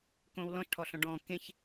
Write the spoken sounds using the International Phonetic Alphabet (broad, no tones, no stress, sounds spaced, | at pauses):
k õː w l ɔ̃ ʃ ʈʰ ɔ ɬ ɔ̃ ɖ ɔ̃ː k ẽ ç